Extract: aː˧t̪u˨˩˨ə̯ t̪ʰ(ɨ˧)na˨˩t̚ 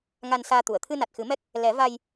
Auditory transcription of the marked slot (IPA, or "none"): ɨ˧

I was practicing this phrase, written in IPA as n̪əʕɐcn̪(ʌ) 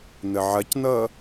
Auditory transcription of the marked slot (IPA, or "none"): ʌ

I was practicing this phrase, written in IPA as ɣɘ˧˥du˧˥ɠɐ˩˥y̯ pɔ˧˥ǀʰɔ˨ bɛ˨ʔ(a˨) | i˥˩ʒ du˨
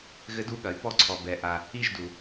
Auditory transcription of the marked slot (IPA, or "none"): a˨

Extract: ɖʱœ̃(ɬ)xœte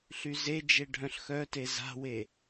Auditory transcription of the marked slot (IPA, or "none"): ɬ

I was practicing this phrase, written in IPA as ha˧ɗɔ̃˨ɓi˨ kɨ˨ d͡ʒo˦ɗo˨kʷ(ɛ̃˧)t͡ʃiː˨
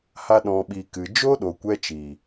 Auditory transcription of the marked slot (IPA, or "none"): ɛ˧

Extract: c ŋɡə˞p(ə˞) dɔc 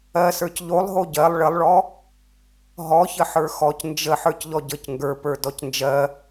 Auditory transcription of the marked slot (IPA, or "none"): ə˞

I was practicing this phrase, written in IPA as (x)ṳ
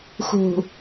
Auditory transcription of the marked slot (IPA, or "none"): x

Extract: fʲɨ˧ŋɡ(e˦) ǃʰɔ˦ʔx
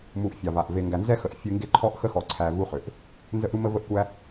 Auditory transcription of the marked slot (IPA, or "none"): e˦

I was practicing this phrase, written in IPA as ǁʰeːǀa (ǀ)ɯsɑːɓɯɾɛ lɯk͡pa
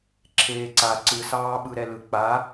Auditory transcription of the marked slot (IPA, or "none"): ǀ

